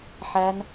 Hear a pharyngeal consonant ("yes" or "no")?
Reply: yes